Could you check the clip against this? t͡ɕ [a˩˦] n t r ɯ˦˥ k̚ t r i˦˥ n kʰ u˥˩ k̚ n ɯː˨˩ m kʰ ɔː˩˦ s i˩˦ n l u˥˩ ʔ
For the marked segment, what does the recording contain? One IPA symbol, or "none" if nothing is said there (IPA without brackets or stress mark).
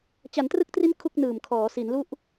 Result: a˩˦